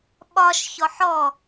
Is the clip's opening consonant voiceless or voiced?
voiced